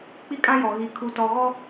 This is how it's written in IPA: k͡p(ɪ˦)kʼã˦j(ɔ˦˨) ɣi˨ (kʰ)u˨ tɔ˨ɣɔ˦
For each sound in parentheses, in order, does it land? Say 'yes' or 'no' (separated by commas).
no, no, yes